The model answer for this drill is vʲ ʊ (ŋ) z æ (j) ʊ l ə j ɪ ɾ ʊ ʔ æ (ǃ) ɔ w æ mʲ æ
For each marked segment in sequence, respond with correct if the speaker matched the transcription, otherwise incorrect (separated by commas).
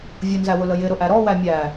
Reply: incorrect, incorrect, incorrect